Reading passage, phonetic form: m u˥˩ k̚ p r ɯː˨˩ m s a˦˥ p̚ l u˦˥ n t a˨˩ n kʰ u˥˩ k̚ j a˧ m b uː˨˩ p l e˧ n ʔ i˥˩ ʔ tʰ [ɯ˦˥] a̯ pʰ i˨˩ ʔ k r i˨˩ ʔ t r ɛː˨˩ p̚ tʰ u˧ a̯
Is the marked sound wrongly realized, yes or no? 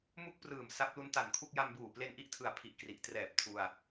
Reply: yes